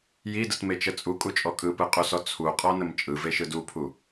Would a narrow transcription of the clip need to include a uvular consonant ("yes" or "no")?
yes